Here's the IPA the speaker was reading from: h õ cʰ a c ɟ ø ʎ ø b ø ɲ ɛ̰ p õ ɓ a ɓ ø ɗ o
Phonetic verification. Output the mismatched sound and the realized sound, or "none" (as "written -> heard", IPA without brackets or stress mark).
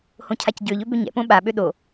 none